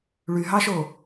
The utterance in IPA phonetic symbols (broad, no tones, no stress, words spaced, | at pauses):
ɭyɦɑʃo